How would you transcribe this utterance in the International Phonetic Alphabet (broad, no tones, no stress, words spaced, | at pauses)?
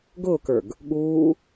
ɡʊːkə˞ɡ | ɠuː